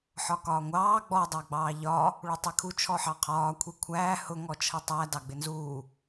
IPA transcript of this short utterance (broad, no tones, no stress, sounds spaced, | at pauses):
ħ ɒ k ɒː ŋʷ ɑː ɡ͡b ɔ dˤ ɑ ɡ͡b ɑː ʎ ɒ | ɭ u tˤ ɛ kʰ u t͡ʃʰ ɔ ħ ɑ qʰ ɒː kʷʰ i kʷʰ æː h ʊ ŋ ɔ t͡ʃʰ ʌ tˤ æ d ɑ ɡ͡b ɪ n z uː